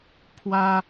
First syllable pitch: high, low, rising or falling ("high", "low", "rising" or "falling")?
high